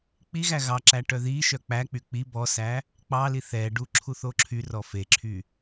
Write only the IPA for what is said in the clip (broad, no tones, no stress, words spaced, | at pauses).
k͡piɣæ ɣɑǁæ ʈœðiʃœ k͡pæk͡py k͡pi bɔsæ | k͡pɑli θɛɖu ǁʰuθoǁʰyrɔ feǁʰy